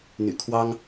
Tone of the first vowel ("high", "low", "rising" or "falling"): low